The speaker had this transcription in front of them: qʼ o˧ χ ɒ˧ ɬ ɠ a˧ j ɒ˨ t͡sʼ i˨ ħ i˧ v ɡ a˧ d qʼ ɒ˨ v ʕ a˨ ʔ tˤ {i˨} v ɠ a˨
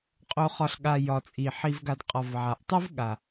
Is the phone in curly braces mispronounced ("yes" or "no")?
yes